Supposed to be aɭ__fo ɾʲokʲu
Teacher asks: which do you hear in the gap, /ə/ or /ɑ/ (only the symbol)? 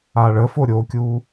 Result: ə